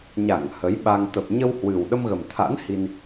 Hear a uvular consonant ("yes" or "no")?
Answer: no